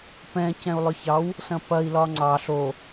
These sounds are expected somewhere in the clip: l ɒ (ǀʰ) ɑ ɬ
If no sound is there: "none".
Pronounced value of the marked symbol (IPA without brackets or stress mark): ŋ͡ǀ